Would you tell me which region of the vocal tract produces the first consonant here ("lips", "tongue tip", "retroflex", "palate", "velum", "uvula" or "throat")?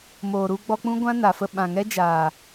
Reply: lips